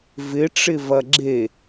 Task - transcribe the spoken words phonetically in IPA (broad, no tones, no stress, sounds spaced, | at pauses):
v ɪ ʈ͡ʂ ɪ v ɐ ɡ͡ǁ e